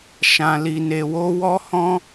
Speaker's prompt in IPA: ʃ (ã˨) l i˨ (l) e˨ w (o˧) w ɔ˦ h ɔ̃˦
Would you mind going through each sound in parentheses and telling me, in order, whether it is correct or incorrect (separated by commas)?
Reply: correct, incorrect, incorrect